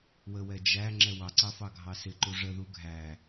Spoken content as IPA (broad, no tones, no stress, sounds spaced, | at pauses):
w ə w ɛ d͡ʒ æ ŋ͡ǁ ɛ w ɑ ǀ ɑ f ɑ ɡʱ ɑ s ɪ ǃ u ʐ ə ð u ɡʱ æ